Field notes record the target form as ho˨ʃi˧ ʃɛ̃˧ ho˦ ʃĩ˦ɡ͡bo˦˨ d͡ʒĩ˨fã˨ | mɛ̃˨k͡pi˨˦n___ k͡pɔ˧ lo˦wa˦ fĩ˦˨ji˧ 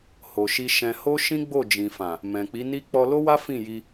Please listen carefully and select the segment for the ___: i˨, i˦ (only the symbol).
i˦